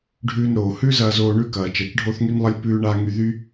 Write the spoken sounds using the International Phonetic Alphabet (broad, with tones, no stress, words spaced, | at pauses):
ɖʱʉː˧nɾoː˩ hʉ˥zɐː˧zoː˧ ɳʉ˥kɐː˩ t͡ʃɐ˩t͡ʃɖʱo˥θŋy˥nlˠɐ˥lʲ pʉː˧ɳa˧ ŋy˧ðy˥